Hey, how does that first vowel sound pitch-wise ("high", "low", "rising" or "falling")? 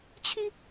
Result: high